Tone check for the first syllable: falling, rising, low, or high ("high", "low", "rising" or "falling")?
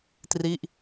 falling